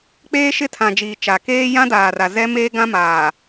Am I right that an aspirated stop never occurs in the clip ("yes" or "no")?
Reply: no